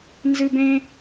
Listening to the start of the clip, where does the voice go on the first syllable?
high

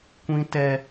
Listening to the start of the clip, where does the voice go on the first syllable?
high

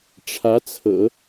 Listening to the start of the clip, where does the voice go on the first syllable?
rising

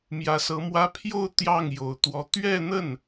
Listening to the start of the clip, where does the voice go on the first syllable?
rising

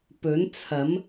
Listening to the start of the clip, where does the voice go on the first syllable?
rising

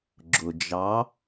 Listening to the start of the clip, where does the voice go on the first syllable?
low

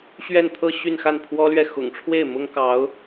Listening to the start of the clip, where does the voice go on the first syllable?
falling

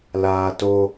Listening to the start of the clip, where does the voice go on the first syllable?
high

